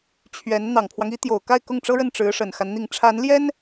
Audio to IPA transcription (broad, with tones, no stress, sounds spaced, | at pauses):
t͡ɕʰ ɥ ɛ˧˥ n n̪ ɑ˨˩ ŋ pʰ w ɑ˦ ŋ i˧˥ t̪ j o˨˩ ʊ̯ k a˥˧ ɪ̯ k ʊ˥˩ ŋ ʈ͡ʂ ɤ˥ ɻ ə˥˩ n ʈ͡ʂ ɻ̩˧˥ ʂ ə˨˩ n x a˦ n n̪ i˨˩ ŋ ʈ͡ʂʰ a˧˥ n l j ɛ˥ n